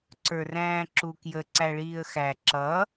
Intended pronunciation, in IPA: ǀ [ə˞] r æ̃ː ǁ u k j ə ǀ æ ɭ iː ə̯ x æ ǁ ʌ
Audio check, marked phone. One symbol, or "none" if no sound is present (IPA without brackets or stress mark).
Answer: ə˞